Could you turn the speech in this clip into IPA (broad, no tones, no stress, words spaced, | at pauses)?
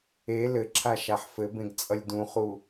e lɘǁʰa ʃaħfɘbẽɡ t͡sʼʌlʲdũχu